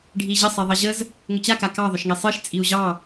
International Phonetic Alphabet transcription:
ɖʱ i ʑ ə sˤ e ðˤ ɑ ʑ ə z | ŋ ʏ t͡ɕ a k a k ɑ ðˤ ʏ ʃ ŋ e sˤ ɨ ʃ t͡sʼ i u̯ ʑ ɑ

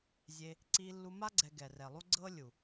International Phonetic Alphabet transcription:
zʲ e˧ | ǀ i˧ lː u˧ m a˦ ɡ͡ǀ ɛ˧ ɡ ɛ˨ r ɛ˨ lˠ u˦ ɡ͡ǀ ɤ˦ lʲ u˨

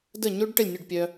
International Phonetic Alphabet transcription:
d ə˥˩ ɲ o˥ ɖ ʈ ə˥˩ lʲ nʲ œ˥˩ ɖ pʲ œ˧

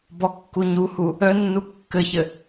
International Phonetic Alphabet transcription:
b ɔ kː u ɲ u h u | œ nː u kː ɘ ç ɘ

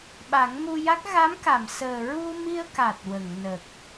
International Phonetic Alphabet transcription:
ɓ a˨˩˦ ŋ m u˧ j a˦˥ k̚ ɣ a˧˥ m k a˨˩˨ m s əː˨˩ ɹ u˧ m i˧ ə̯ k a˨˩ t̚ w ə˨˩˨ ŋ n ə˨˩ k̚

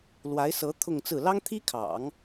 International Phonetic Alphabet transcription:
l w a˧˥ ɪ̯ s ɤ˧˥ t̪ʰ ʊ˥˧ ŋ t͡s ɹ̩˥˩ l ɑ˥ ŋ t̪ʰ i˥ kʰ ɑ̰˨˩˦ ŋ

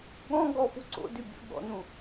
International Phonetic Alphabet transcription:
ɠ ɔ̃ ɡ ɔ f u ǀ o̰ d y bʲ o̰ ɠ ɔ̰ n ũ

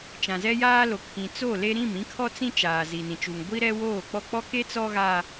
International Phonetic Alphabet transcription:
t͡ʃ ã˨ z ɛ˦ j aː˦ l o˨ kʰ ĩ˨ t͡s o˦˨ l e˦ ɾ ĩ˦˨ m ĩ˦ kʰ ɔ˦ t͡s ĩ˦ t͡ʃ aː˨ z i˨ n ĩ˨ t͡ʃ u˨ ŋ ɡʷ i˦ ɾ ɛ˦ w oː˦˨ k͡p ɔ˦˨ k͡p ɔ˦ k e˦ t͡s ɔ˦ ɣ a˦

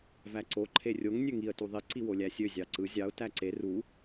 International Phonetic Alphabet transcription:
v æ ǀ o ǃʰ e rʲ o ŋ nʲ ø ŋ i ə̯ t u ðˤ i ǀ i w o lʲ æ sʲ ø zʲ ɑ ǀ ɯ zʲ ɑ ʊ̯ t æ ǀ e r u

